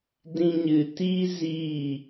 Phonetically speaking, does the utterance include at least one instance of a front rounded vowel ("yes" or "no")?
no